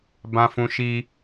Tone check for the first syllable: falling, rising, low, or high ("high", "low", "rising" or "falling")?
high